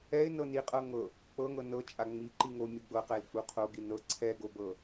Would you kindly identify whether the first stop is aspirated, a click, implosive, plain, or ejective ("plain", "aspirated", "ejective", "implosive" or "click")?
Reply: ejective